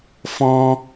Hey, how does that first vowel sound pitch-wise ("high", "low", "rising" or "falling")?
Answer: high